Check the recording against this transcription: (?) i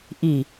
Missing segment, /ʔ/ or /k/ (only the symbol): ʔ